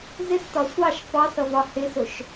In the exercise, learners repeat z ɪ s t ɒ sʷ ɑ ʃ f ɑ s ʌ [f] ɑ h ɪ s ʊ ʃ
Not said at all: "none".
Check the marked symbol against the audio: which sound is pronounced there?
v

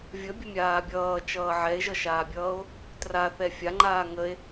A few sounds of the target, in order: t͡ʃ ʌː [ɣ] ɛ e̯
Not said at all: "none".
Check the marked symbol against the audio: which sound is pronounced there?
ʕ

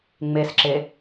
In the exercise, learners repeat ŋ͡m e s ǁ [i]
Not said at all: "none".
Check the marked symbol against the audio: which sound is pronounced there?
e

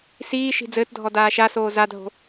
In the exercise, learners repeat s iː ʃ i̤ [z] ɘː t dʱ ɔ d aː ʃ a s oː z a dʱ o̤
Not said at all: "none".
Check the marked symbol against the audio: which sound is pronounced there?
d͡z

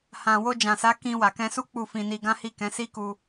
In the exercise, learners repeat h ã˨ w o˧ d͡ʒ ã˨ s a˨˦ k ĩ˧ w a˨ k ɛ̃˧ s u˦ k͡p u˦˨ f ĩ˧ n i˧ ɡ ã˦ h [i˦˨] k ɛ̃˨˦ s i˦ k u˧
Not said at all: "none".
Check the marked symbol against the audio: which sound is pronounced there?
i˦˨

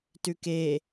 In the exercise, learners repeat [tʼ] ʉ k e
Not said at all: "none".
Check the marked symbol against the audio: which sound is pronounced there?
t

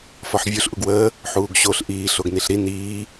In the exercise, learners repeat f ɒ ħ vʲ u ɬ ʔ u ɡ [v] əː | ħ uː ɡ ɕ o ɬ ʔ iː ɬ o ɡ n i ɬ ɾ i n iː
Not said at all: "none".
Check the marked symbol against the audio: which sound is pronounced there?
w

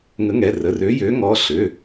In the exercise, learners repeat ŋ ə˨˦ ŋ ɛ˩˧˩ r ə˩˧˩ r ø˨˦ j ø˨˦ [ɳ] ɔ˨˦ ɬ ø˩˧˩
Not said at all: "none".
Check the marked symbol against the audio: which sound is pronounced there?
ŋ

